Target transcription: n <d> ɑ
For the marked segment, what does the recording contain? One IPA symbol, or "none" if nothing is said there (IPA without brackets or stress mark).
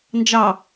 d͡ʒ